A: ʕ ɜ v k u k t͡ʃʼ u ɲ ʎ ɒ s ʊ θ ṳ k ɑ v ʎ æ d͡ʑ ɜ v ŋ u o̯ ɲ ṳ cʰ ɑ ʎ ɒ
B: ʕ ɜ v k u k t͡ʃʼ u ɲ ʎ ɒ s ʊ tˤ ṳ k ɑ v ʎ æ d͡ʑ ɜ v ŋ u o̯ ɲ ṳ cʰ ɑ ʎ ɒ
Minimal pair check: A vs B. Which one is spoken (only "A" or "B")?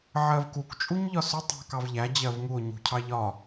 B